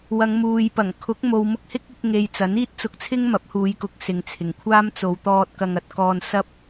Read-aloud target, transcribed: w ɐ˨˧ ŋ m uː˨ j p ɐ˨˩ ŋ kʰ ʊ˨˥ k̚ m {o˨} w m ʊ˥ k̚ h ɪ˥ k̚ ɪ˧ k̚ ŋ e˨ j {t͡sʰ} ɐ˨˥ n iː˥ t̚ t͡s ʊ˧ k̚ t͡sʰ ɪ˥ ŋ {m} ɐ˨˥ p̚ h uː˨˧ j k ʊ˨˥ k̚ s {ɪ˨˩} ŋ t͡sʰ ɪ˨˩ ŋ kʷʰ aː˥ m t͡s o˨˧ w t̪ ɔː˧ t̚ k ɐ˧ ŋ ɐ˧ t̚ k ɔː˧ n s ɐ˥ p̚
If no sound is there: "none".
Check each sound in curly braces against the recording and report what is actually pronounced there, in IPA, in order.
o˨, t͡s, m, ɪ˨˧

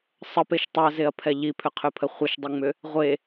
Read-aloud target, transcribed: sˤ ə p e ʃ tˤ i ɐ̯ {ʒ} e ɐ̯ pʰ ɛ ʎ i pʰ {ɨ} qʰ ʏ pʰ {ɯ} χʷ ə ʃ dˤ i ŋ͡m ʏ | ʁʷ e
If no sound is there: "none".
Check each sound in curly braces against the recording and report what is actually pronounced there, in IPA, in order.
z, ʏ, ə

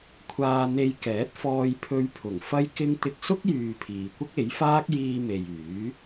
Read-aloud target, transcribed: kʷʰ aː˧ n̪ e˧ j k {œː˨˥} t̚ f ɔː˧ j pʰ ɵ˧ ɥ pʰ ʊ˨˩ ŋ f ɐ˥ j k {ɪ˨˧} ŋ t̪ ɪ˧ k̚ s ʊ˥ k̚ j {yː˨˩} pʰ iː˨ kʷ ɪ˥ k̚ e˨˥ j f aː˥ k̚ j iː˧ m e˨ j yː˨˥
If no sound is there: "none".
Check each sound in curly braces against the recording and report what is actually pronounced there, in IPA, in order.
ɛː˨˥, ɪ˥, yː˨

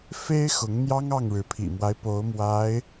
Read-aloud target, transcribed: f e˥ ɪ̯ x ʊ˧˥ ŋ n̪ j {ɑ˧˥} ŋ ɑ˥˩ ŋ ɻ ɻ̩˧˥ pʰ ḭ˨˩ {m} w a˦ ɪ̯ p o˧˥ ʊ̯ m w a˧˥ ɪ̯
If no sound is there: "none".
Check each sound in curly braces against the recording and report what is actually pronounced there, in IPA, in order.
ɑ˥, m

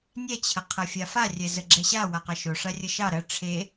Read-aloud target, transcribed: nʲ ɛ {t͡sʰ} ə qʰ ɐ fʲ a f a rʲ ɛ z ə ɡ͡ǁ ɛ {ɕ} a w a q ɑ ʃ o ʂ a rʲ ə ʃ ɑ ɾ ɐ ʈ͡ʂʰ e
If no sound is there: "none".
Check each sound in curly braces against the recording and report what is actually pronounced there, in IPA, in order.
t͡ɕʰ, ɕ

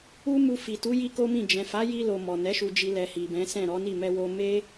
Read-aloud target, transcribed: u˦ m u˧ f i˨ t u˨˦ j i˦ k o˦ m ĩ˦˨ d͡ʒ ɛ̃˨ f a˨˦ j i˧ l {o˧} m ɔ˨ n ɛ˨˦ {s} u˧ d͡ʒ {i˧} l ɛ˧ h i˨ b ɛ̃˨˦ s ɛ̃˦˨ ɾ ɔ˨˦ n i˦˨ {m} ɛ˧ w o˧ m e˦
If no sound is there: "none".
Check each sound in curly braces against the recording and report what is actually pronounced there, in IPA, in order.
o˨, ʃ, i˧, m

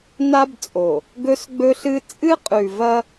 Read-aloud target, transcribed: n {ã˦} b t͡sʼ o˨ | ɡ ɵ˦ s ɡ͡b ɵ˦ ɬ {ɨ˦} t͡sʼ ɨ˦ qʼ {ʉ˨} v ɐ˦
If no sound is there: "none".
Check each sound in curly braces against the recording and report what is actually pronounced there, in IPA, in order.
a˦, ɨ˦, ʉ˨

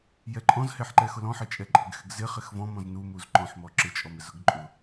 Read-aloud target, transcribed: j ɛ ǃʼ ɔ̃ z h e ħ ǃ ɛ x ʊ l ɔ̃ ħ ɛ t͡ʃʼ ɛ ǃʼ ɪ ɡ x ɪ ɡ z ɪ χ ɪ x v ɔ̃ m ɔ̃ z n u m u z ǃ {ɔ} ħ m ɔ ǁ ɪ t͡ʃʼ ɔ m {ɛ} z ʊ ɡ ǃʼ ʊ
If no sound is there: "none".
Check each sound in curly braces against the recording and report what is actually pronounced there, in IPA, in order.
ɔ̃, ɪ

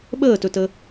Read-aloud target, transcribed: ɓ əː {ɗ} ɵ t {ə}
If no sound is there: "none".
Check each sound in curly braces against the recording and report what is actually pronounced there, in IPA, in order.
t, ə

